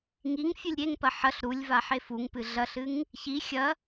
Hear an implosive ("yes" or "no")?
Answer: no